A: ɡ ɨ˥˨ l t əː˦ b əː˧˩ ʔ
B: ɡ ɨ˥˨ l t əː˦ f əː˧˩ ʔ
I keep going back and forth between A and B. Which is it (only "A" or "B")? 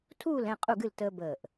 A